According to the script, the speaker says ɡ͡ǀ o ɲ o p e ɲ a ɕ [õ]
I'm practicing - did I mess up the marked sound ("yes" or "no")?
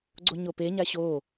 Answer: yes